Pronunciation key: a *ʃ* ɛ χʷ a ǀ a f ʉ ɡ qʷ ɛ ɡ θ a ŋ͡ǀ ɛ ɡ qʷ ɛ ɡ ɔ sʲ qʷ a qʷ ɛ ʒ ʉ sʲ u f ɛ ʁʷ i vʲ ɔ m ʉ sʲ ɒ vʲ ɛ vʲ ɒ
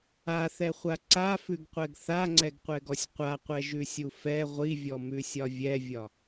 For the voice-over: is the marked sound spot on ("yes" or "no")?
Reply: no